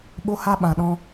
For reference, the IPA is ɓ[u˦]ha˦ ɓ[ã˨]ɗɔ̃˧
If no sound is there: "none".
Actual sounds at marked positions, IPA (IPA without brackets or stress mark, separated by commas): o˦, ã˨